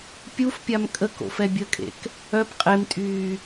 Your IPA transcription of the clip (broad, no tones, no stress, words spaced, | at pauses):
pʲufpʲam kʼək o̰fɛbʲəkʼḛk | œp qʼemtʼyː